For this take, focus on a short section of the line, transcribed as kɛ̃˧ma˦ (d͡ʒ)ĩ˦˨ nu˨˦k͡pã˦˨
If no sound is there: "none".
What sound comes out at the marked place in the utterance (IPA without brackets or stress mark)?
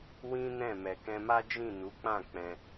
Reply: d͡ʒ